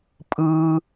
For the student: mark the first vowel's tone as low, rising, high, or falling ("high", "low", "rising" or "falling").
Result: high